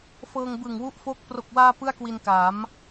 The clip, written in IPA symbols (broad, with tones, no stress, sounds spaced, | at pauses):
f ɤː˧ ŋ b ɯ˨˩ ŋ w u˦˥ ʔ f o˦˥ k̚ p r o˨˩ k̚ w aː˧ p ɯ˥˩ a̯ k w i˧ n k aː˩˦ m